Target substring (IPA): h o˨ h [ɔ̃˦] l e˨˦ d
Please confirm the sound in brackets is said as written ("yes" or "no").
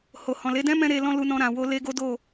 no